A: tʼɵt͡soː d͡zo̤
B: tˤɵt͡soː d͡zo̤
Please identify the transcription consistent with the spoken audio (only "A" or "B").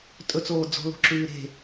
A